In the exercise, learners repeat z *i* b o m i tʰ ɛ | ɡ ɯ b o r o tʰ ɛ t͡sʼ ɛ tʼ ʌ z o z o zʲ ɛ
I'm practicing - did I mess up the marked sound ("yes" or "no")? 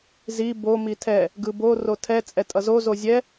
no